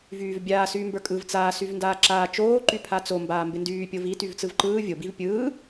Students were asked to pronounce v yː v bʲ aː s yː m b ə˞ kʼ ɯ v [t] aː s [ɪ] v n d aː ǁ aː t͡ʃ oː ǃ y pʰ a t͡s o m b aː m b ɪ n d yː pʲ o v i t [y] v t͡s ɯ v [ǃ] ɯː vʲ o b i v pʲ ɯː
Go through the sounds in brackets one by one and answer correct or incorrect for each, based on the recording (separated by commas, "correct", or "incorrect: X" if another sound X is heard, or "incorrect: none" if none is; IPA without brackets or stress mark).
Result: incorrect: t͡s, incorrect: y, correct, correct